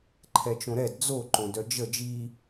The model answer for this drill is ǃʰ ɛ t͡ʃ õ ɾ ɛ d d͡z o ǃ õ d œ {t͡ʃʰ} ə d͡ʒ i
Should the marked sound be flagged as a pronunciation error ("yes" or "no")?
yes